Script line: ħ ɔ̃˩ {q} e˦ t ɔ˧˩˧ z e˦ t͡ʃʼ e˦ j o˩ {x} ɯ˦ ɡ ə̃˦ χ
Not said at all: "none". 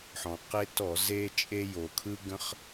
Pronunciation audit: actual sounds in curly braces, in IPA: q, kʰ

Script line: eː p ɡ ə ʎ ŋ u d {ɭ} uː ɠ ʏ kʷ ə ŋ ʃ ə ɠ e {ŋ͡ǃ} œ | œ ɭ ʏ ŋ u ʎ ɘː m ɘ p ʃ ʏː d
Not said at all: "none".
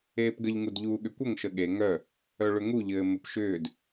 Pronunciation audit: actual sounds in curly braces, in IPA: ʎ, ŋ

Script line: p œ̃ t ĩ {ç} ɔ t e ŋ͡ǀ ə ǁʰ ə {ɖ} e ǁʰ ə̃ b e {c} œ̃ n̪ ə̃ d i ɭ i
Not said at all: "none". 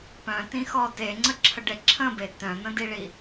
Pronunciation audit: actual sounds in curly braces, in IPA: x, ɖ, t

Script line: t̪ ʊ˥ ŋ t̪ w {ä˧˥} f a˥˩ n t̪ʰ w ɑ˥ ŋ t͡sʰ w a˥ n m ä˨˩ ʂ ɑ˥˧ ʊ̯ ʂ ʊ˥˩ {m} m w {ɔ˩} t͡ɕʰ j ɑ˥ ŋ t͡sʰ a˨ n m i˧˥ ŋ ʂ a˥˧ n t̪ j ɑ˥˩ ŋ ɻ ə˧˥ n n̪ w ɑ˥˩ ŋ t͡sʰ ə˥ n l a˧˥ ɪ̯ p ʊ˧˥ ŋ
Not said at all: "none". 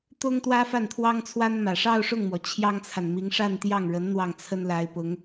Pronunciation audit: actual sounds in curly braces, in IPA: ä˥, ŋ, ɔ˩

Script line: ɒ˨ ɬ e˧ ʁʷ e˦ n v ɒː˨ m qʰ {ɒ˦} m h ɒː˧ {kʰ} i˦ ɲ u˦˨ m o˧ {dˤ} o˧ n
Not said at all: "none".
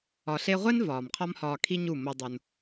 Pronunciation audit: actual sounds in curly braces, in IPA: ɒ˦, kʰ, dˤ

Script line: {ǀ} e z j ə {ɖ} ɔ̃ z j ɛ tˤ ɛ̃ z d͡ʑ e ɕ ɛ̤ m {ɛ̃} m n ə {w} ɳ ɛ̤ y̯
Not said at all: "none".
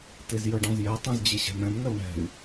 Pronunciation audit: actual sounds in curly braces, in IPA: t, ɖ, ɛ̃, w

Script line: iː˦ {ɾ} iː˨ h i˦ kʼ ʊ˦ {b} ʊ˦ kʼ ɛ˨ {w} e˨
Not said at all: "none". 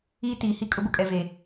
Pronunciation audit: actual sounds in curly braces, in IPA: t, b, v

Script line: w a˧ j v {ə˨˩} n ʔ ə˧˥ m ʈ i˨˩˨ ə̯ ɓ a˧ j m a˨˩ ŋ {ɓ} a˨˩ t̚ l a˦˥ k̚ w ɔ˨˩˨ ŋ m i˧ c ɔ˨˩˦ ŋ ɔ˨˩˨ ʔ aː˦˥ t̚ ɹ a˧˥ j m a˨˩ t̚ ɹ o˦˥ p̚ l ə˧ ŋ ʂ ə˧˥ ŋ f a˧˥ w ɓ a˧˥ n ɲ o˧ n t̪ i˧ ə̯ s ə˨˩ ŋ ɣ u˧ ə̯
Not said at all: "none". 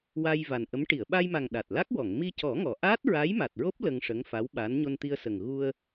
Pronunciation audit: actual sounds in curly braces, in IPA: a˨˩, ɗ

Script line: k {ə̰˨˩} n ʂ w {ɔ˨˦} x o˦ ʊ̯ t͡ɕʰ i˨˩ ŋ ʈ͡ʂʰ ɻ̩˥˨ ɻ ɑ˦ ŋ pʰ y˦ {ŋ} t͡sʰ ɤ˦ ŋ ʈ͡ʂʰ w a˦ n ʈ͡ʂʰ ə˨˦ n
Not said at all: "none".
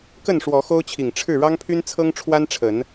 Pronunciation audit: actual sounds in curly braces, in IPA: ə˥˨, ɔ˨˦, n

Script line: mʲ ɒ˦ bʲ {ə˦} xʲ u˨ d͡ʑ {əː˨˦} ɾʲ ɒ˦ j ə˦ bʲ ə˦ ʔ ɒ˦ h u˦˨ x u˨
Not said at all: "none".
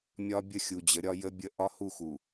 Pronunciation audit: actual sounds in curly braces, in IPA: ə˦, ə˨˦

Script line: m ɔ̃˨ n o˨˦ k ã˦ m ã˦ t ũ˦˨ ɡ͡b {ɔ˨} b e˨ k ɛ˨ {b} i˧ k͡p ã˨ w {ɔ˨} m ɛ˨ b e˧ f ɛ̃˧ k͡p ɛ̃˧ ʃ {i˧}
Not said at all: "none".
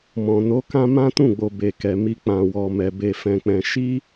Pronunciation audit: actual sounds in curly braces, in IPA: o˨, m, ɔ˨, i˦

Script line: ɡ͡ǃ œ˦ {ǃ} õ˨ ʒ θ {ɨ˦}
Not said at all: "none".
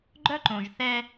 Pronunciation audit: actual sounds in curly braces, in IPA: ǃ, ɛ˦

